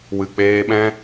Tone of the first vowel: low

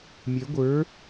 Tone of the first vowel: rising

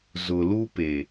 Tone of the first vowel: low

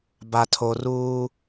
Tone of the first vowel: low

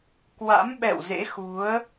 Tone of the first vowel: rising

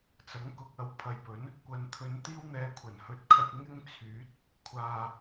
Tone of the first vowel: rising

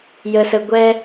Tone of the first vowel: low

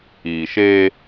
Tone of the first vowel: low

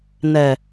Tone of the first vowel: low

